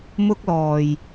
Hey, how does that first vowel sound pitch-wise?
high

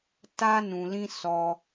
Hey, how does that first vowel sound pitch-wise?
high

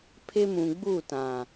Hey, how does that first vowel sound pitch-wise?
high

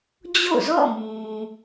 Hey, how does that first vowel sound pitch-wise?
falling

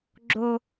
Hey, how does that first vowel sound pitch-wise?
high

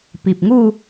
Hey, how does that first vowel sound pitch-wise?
low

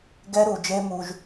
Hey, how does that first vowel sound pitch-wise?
high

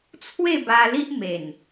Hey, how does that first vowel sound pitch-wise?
falling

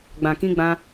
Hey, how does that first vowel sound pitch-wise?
low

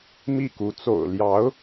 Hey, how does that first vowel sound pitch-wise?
falling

